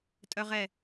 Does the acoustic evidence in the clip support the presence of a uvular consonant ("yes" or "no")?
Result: yes